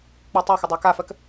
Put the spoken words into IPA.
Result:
k͡p ə˞ tˤ æ x ə dˤ æ k a f ɜ k

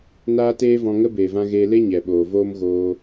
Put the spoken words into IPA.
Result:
n aː˦ t eː˦ v ɔ̃˧ ŋ ə˦ b eː˨ v ã˦ ɣ eː˧ l e˦ ɲ ɛ˨ ɓ oː˨ v oː˦ m ɣ oː˧

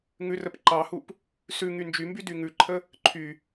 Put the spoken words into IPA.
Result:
ŋ ʉ r ə p ǃ ɑ h u p | s ʉ ŋ y n d͡ʒ y m b y d y ŋ ʉ ǃʰ ə | ǃʰ y

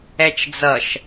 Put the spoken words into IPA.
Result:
ɛ t͡ʃ d͡z ʌ ʃ

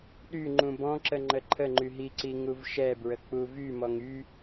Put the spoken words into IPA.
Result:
ɗ y ŋ͡ǃ ũ b ɔ̃ ǁ ə ŋ͡ǃ ə ǃʰ ə ŋ͡ǃ y ɦ i ǀ i ŋ u v ʃ ɛ b ɹ ə k͡p u v y m ɔ ŋ y

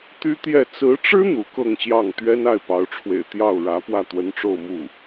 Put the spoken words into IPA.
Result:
t̪ y˥ t̪ j ɛ˥˩ t͡s ɹ̩˧˥ ʈ͡ʂ ɻ̩˥ n̪ u˧˥ k ɤ˥˧ ŋ ɕ j ɑ˥˩ ŋ t̪ ɥ ɛ˥ n a˥˩ ɪ̯ p ɑ˧˥ ʊ̯ ʈ͡ʂʰ w ḛ˨˩ ɪ̯ t̪ j ɑ˥˩ ʊ̯ ɻ ä˧˥ p w ä˥˩ t̪ w ə˧˥ n ʈ͡ʂ o˥˧ ʊ̯ m u˥˩

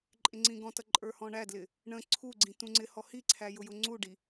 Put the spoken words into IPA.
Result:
ǃʼ ɪ ŋ͡ǀ ĩ ɡ ɔ̃ t ʌ ǃʼ ə˞ h ɔ̃ ɳ æ d l ɪ | ɳ ə̃ ǀʰ u ɡ͡ǀ ĩ t ũ ŋ͡ǀ ɪ h ɔ h i ǀʰ æ j ʊ j ʊ ŋ͡ǀ u ɖ i

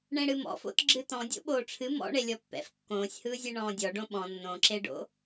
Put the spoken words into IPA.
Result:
ɳ ẽ ɽ ɨ m ɔ̰ f o̰ t ɡ͡ǁ ɨ t ɔ̃ dʲ o̰ ɓ oː ʈ͡ʂʰ ɨ m ɔ̰ ɳ e lʲ ɔ pː ɛ̰ f kː õː sʲ h ɯː zʲ e ɳ ɔ̃ː dʲ ɔ ɖ õ ɓ ɔ̃ nː õ ǁ e ɖ o̰

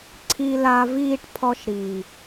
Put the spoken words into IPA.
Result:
ǀʰ i˨ l a˨ v iː˧ ʈ pʰ ɔ˧ ʃ ɾ iː˨

